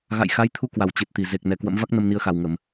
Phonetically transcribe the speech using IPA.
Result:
ɣa̰˧˨jxa˨˦jt̪ʰu˧kwa˧˩w t͡ɕɨ˨˩t̚t̪i˧˩ ze˨˩k̚ nɛ˨˩kwə̰˧˥mva˦˥k̚ nə˧mni˧ə̯xa˨˩w ŋə˧˩˨m

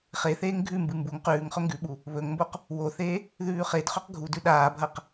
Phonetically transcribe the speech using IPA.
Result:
χeθeːŋ ɡʱʉmbɨ mbuŋ qʉːŋχɵ ŋɡʉɓu | βɵŋmboq | woθeː | ðʉːχedχɵq ɡʱudʉ ɗaːbʱɐq

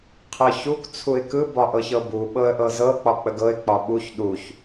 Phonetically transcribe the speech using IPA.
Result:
qʰɤçuk t͡sʰuɪ̯kɯ bɒʔɤçɤbu ɓɤə̯ʔɤzɤ k͡pɒk͡pəɡɤɪ̯ k͡pɒɓuç ɗuç

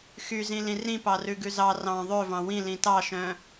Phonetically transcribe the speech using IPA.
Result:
xyzĩlĩ rĩpɑrʉɡʉ zɑ rɑ̃ ðˤøvɑ̃ wĩlĩ tɑʃœ̃

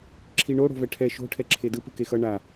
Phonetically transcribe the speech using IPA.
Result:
ǁʰiɳo ɽo̤vɛʈʰɛ ʃo̤ ʈʰɛǁʰedɯ pɯkexʌ ɳa

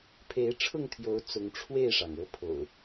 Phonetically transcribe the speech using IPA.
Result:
pʰe˨˦ɪ̯ʈ͡ʂʰʊ˥˨ŋt̪ʰjo˨˦ʊ̯ t͡sʊ˨˦ŋʈ͡ʂʰwe˥˨ɪ̯ʂɑ˩ŋ ɤ˨˦ pʰo̰˨˩ʊ̯

